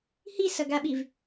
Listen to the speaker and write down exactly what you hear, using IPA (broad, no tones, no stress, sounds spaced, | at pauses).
h i s ʌ ɡ a ɓ i v